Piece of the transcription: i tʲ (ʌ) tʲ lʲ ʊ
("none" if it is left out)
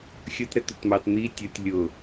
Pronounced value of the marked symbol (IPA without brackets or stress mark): ʌ